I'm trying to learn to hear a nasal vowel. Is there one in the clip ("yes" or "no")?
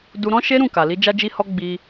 yes